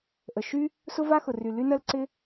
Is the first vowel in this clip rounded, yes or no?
no